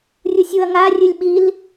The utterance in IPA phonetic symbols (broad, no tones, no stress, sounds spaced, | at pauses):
rʲ u sʲ u ɐ̯ ŋ a rʲ ɨ lʲ ɓ i l